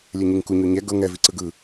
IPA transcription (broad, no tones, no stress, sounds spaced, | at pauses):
lʲ ɛ ɲ i ŋ k u ɲ o ɲ ɛ ɡ ɤ ŋ ɛ v i ǀ ɯ ɡ ɯ